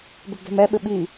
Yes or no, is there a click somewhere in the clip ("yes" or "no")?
no